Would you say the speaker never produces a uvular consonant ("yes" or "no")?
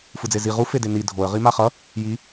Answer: no